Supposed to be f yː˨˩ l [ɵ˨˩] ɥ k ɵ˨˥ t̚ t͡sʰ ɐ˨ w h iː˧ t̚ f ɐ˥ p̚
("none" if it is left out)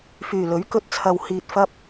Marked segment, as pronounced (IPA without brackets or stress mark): ɵ˨˥